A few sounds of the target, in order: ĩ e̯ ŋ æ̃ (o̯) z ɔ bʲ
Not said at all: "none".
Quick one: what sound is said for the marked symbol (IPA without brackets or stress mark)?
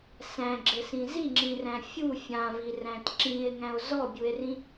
o̯